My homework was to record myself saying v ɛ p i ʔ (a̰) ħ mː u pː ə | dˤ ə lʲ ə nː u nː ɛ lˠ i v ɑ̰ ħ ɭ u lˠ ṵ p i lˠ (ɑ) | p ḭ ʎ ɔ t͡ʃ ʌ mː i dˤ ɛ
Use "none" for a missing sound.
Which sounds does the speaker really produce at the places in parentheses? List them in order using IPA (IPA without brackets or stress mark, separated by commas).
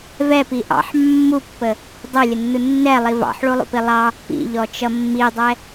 ɑ̰, ɑ